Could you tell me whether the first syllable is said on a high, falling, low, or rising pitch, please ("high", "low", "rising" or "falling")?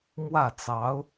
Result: falling